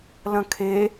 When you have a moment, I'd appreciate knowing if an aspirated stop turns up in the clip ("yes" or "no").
yes